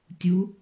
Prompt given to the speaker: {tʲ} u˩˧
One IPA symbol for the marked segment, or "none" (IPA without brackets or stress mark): tʲ